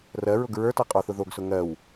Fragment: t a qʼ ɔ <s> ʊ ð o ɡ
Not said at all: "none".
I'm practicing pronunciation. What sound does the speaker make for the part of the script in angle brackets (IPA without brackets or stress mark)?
θ